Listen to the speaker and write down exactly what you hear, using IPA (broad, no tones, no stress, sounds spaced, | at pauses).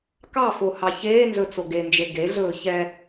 k ɑ f o h ɑ ç eː n z ɵ t͡s o ɡ e n d͡ʒ e ɡ e ɮ ɵː ç ɛ